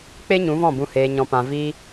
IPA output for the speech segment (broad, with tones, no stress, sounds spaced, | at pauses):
k͡p e˦ ɲ ũ˨˦ v ɔ̃˦˨ b ũ˨ h eː˨ ɲ ɔ̃˨ p ã˨ v iː˧